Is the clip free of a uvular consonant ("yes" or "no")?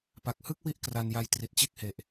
yes